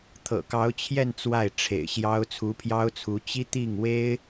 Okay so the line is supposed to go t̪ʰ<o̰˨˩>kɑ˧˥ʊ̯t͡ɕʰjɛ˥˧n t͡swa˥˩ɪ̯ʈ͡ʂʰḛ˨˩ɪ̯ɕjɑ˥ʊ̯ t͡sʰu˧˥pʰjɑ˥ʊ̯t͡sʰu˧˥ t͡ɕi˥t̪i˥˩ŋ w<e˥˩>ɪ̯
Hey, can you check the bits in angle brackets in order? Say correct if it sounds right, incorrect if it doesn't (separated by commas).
incorrect, incorrect